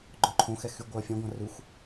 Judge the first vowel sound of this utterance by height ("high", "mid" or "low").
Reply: mid